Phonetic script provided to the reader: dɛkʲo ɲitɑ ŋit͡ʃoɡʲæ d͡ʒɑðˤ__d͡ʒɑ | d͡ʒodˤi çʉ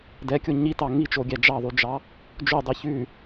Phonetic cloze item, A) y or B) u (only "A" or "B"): A